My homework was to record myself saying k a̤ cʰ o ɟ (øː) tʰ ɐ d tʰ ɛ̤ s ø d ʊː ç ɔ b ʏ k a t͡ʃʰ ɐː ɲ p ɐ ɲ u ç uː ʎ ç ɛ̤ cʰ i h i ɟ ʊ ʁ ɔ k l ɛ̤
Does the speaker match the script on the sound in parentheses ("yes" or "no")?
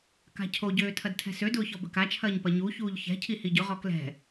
yes